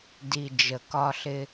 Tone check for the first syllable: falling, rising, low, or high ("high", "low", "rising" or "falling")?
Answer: low